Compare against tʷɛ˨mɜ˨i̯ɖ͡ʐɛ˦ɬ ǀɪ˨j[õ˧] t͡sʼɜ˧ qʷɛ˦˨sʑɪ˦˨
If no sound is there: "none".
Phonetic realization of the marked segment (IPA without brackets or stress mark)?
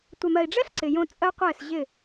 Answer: õ˧